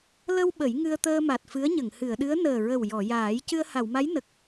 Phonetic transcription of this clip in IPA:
l ə˧ w ɓ ə˨˩˦ j ŋ ɨ˧ ə̯ t̪ əː˧ m a˨˩ t̚ f ɨ˧˥ ə̯ ɲ ə˨˩˨ ŋ h ɨ˨˩˨ ə̯ ɗ ɨ˧˥ ə̯ n əː˨˩ ɹ ə˨˩ w j ɔ˨˩˨ j aː˨˩˦ j c ɨ˧ ə̯ h a˨˩˨ w m a˧˥ j n ə˨˩ k̚

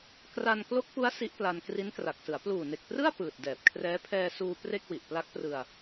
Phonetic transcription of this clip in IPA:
k r a˧ n k l o˦˥ k̚ p u˦˥ a̯ s i˦˥ ʔ p l a˧ n k r i˦˥ n k r a˨˩ k̚ s ɯ˩˦ a̯ p l uː˨˩ n e˨˩ k̚ p r ɯ˥˩ a̯ p ɯː˨˩ t̚ d ɛː˨˩ p̚ kʰ r ɛː˦˥ pʰ ɛː˧ s uː˧ p r e˥˩ k̚ w i˨˩ ʔ p l a˦˥ k̚ p r ɯ˧ a̯

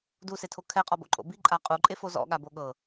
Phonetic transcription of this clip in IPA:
d u s e tʰ o kʰ ɛ qʼ ɔ b o̰ ǃʼ o̰ b i ǃʼ a qʼ u ǃʼ e f o z ɔ̰ ɠ a b o ɠ ɤ

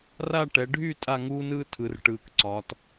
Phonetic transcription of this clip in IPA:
r a˥˧ ʈ ɛ˩˧ ɖʱ y˥˧ tʼ a˥˧ ŋ uː˥ n ɯː˥ tʰ ɯ˩˧ r ʈ ɯː˩˧ k ǀ ɒː˩˧ t

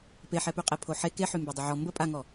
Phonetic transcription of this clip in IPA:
p e ħ ɛ p y qʼ e pʰ o ħ e k e ħ y m b e dˤ ə ʕ ɔ m b ə pʼ a ŋ ɔ

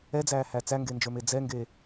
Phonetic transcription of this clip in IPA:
ɛ d͡z æː h æ t͡s æ ŋ ɡ e n d͡ʒ ə˞ m e d͡z ɛ ŋ ɡ e

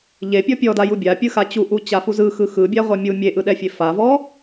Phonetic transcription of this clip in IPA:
ʎ e pʲ ɔ pʲ ɔ d a j u bʲ a pʲ ɯ x a t͡ɕ u ʔ u t͡ɕ a f u z ɯ x ɯ x ɯ bʲ a ʁʷ a mʲ u mʲ e ʔ ɯ ɗ ɛ fʲ e f a v ɔ

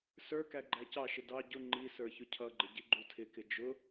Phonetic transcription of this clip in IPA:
s ə˞ k æ ɡ͡ǃ æ c ɑ ʃ ɪ d ɑ ɟ ʊ ŋ͡ǃ i s ə˞ ç ʊ cʰ ʌ ɡ͡ǃ ɪ ɟ i ɡ͡ǃ u tʰ ɪ k ɪ d͡ʒ ʊ

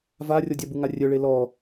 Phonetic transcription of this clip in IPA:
v a rʲ ɔ dʲ a b u ŋ a rʲ œ ɭ e l ɔ

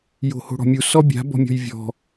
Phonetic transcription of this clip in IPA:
j o̤ h o̤ ɽ ɔ̤ mʲ u s ɔ bʲ a̤ b ɔ̤ mʲ ɔ̤ j vʲ ɔ̤

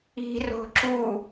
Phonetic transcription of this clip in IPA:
i̤ r o̤ ǁ u

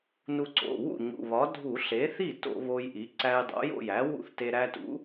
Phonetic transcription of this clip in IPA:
n u˧ ǀ o̰˩˧˩ w ṵ˥˩ ɲ ṵ˩˧˩ β ɒ˩˥ dʱ u˧˩˧ ɬ e˩˥ θ i˥˩ t o̰˧˩˧ β o˧ j ʔ i˩˥ ǀ æ˧ j dˤ o̰˩˥ j o̰˥˩ j æ˩˥ w ṵ˥˩ θ t e˧ ɾ æ˧ t ṵ˩˥

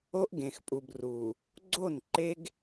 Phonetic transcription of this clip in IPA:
o˦ ʔ ɡ ẽ˨ x pʼ u˨ b r u˨ | ɡ͡ǀ o˦˨ n ǃ e˦ ɡ

